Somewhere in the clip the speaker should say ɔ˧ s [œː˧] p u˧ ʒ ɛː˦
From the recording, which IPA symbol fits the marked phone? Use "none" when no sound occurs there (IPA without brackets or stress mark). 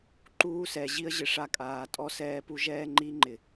ɛː˧